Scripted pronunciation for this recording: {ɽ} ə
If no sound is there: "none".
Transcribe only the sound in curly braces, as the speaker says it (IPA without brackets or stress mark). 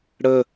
ɽ